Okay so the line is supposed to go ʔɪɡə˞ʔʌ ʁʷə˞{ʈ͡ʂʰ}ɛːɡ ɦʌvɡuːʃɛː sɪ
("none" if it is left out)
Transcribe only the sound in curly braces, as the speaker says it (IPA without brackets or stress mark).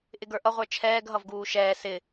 t͡ʃʰ